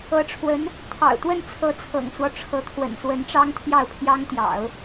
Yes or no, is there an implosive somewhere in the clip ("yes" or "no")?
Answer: no